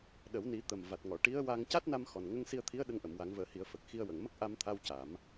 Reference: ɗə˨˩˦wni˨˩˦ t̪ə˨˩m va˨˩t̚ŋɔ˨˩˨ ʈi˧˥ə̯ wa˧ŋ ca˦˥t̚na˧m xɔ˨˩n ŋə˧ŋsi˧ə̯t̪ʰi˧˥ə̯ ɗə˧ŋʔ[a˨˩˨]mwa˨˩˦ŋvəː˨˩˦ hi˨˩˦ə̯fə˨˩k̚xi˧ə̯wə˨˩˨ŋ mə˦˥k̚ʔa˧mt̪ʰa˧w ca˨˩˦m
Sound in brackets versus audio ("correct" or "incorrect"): incorrect